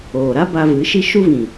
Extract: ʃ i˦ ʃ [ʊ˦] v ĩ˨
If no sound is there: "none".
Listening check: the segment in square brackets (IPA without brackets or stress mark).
u˦